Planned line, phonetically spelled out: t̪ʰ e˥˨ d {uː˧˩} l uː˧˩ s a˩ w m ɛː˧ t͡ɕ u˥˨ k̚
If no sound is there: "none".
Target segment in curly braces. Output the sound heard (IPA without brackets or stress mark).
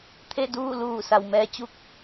uː˥˨